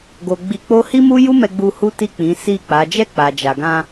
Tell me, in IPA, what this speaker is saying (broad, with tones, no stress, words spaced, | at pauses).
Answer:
ɡo˨ ɡ͡bi˧k͡po˦ hi˦mu˦ju˦mɛ˧ ɡ͡bu˧ hu˦ti˦˨ k͡pĩ˨˦si˦˨k͡pa˨˦ d͡ʒɛ˦˨k͡pa˨d͡ʒa˨ɡã˧